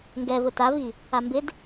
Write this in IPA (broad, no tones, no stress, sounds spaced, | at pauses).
ŋ ɡ ɛ v ʊ t a v i | a m b ɪ d